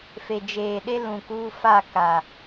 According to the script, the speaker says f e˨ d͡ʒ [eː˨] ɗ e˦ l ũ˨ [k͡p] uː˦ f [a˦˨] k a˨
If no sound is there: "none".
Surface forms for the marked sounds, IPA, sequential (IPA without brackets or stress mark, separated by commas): eː˨, k, a˦˨